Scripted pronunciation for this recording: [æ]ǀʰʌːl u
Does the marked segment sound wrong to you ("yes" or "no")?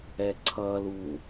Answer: yes